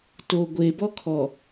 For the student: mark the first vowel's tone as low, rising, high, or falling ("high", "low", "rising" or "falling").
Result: low